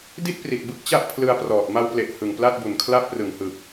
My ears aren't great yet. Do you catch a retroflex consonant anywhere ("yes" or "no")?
no